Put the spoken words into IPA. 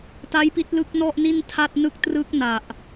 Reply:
t a˦˥ j p i˦˥ t̚ l ɯ˦˥ k̚ n ɔ˥˩ ʔ n i˥˩ n tʰ a˥˩ t̚ n ɯ˥˩ k̚ t r ɯ˦˥ k̚ n a˨˩ ʔ

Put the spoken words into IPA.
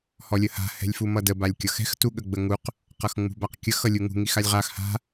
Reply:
h ɔ lʲ ə h a̤ h ɛ̤ lʲ f u m ʌ d ə b a lʲ kʲ ʌ x ɛ̤ x t u ɠ ə ɡ͡b ə ŋ u q | q ʌ x ŋ͡m ṳ b a q kʲ ə x ʌ lʲ u ŋ ṳ ŋ i x a lʲ ʁ a x h a̤

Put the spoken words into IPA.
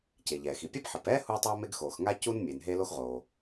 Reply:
c e˩ ʎ ɛː˩ x i˩ pʲ ɛ˥ b ħ ɘ˩ p ɛː˥ h uː˥ tˤ oː˥ m e˥ ɡ x oː˩ x ŋ a˥ c u˥ n mʲ e˩ n ɦ e˥ l o˥ x ʁ oː˩

